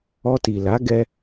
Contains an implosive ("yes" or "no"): no